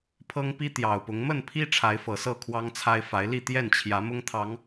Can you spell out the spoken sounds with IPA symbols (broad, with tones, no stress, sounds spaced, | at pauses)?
pʰ ɤ˦ ŋ p i˦ t̪ j ɑ˨˩ ʊ̯ p ʊ˨˦ ŋ m ə˥˨ n pʰ i˦ ʈ͡ʂʰ a˨˦ ɪ̯ f ɤ˨˩ s ɤ˥˨ kʰ w ɑ˦ ŋ t͡sʰ a˦ ɪ̯ f a˨˦ ɪ̯ l i˥˨ t̪ j ɛ˥˨ n t͡ɕʰ j ä˨˦ m ʊ˦ ŋ t̪ʰ ɑ˨˦ ŋ